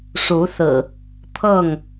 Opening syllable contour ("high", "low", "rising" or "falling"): rising